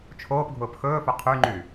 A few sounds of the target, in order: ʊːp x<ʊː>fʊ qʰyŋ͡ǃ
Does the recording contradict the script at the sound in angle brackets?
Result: yes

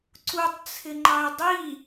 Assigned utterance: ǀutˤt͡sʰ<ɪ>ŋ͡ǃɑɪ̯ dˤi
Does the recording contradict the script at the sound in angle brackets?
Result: no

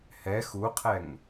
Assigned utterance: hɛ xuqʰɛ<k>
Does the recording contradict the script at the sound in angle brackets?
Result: yes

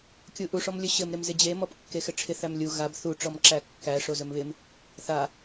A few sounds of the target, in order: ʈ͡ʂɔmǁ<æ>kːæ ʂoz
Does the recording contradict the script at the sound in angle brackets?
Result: no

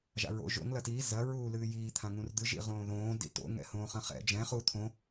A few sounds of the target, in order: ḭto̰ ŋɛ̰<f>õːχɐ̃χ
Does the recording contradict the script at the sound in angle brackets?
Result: yes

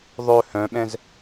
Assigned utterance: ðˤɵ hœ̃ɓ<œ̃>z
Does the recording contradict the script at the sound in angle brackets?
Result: yes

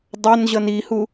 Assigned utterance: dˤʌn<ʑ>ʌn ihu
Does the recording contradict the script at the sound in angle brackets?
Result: no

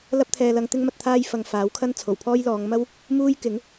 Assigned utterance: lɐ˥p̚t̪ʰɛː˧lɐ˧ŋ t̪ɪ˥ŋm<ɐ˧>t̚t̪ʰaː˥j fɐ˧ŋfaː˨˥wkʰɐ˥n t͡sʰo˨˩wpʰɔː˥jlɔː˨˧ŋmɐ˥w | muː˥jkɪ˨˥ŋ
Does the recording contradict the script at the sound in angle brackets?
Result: no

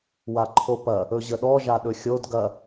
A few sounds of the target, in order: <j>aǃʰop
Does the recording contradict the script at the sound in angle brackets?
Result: yes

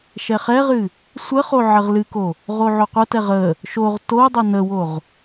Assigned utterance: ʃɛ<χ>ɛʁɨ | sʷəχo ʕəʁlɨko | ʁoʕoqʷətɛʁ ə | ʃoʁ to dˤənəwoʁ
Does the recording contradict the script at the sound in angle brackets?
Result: no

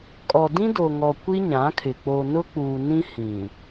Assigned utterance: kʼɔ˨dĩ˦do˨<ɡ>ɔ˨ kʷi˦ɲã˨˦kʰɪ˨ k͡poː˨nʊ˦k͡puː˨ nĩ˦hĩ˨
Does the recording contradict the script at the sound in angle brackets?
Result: yes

